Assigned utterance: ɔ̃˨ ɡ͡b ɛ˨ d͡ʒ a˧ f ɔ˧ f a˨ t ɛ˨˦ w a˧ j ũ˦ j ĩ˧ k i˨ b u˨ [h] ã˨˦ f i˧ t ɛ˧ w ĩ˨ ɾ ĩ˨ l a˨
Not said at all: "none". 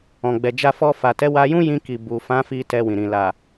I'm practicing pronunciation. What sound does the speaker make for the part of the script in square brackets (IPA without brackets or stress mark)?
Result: f